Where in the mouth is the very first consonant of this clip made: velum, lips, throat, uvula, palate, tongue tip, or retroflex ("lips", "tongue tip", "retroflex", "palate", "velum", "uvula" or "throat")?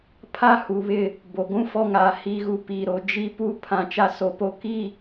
lips